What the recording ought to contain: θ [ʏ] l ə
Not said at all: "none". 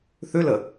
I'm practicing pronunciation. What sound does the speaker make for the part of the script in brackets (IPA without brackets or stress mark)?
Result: ʏ